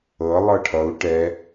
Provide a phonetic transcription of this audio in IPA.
ɤ lˠɤʈʰʌu̯ ʈɛ

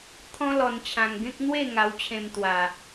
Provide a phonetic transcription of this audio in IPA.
t̪ʰɔ̃˦lɔ˧nt͡ɕʰã˧ŋɡẽ˦k̚ n̪we˥˧ŋa˧wt͡ɕʰẽ˧m t̪wa˧

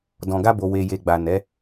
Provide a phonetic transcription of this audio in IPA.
dɔ̃˨ɡa˧bo˨ we˨je˨ɡ͡ba˨ nɛ˨˦

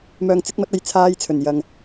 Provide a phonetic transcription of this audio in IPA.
mœː˨ŋt͡sɪ˨˥k̚mɐ˨˥t̚ ɐ˧jt͡sʰaː˧jt͡sʰɵ˨˩n jɐ˨ŋ

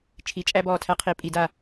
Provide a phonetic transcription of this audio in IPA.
t͡ʃʰi˨˩˦t͡ʃʼæ˦bɔː˧˩tʰæ˦ qʰi˨˦pʼi˨˩˦da˧˩

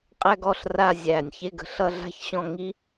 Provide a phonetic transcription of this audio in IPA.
qʼæ˥ɡɔ˧ɬ ra˥˧zʲæ˧˩nʲ çe˥˧ɡə̤˧˩ ɬʌ˥˧ɮa̤˥˧çɕɔ̃˥˧ ŋi˥

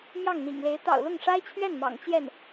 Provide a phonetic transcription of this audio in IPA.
mjɑ˥˩ŋn̪ḭ˨˩ŋle˧˥ɪ̯ t̪ɑ̰˨˩ʊ̯ lʊ˥˩ŋʂa˥ɪ̯t͡ɕʰɥɛ˥˩nmɑ̰˨˩ŋ t͡ɕjɛ˥˩n

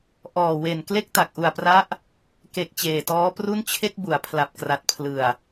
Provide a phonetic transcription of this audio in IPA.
ʔɔː˨˩we˨˩n kle˥˩k̚ta˨˩k̚ ʔu˨˩a̯pra˦˥ʔ | ke˨˩k̚ t͡ɕeː˨˩tɔː˦˥pru˥˩n t͡ɕʰe˥˩k̚bu˩˦a̯pʰla˨˩p̚ kra˨˩t̚pʰlɯ˨˩a̯

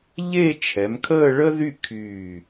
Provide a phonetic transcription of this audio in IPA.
ʎe˥˧t͡ʃʰɛ˩˧m kʰəː˥˧ɭə˥ðy˥˧ kʰyː˧˩

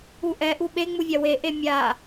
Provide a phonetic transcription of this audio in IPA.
uʔɛ ʔuɓe ŋ͡muvʲawe ʔemʲa

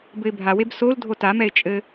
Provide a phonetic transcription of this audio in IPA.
bɘɪ̯bʱaweb sol dʱotamɛɪ̯ t͡ʃʼɘ

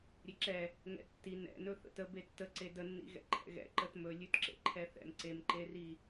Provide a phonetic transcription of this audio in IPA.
ɾʲeǁɛ | ŋɛ̰tːi nɛ̰nɵ θə̰tə betːəǀe dənːḭ ɣɛ̰ǃʰɛ̰ɣɛ̰ ǃətmɵ lʲʉtǁḛǃʰɛθɛ̰m ǀemǃeri

